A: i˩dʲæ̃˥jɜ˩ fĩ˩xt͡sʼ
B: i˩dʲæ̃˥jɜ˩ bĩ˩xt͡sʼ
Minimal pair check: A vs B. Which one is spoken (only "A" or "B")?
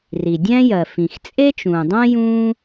A